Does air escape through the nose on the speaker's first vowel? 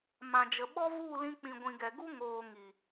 yes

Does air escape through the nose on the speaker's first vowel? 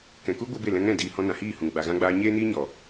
yes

